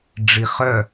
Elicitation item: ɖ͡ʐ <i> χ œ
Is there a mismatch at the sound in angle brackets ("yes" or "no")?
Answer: no